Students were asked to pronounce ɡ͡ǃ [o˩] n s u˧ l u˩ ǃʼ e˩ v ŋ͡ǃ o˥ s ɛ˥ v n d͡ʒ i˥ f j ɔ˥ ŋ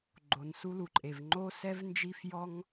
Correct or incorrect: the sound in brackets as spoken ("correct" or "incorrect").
correct